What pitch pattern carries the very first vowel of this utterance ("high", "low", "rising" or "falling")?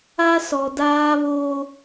high